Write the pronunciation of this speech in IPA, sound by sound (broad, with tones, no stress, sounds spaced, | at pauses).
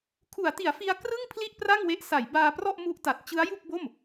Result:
kʰ u˩˦ a̯ t i˩˦ a̯ f i˧ a̯ k r ɯ˥˩ ŋ pʰ l i˥˩ ʔ p r a˥˩ ŋ w e˦˥ ʔ s a˩˦ j b aː˧ p r ɔ˥˩ ʔ m u˦˥ ʔ t a˨˩ t̚ t͡ɕ ɯ˦˥ a̯ j u˥˩ k̚ b o˥˩ m